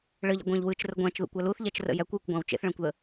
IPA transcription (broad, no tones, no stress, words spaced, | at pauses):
ɭəʎə̰ɡʷæ̃ʎ wɯt͡ʃrə ɡʷæ̃t͡ʃðə̰kʷæ luθʎæt͡ʃrə̰ jækʷjəkʷɡʷæ̃w t͡ʃḛθɭæ̃kʷðə